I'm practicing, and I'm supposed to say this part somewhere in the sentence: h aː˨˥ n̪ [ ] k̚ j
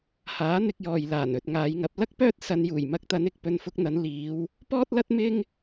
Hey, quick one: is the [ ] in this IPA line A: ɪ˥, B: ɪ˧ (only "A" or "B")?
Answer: B